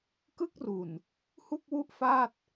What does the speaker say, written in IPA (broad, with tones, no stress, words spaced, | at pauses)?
kɯ˥˩k̚ru˨˩n | hu˥˩k̚ wu˥˩ʔfaː˥˩t̚